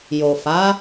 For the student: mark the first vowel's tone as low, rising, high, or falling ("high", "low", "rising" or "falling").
low